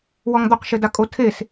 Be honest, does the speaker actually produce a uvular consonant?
yes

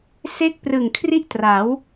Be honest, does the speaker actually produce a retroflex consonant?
no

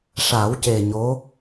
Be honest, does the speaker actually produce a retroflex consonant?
yes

